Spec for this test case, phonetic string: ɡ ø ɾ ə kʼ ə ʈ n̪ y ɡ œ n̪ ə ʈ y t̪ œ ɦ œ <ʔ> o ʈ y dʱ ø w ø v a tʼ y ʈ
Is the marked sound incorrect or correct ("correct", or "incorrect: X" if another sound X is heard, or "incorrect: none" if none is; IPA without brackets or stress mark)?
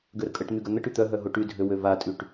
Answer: incorrect: ɦ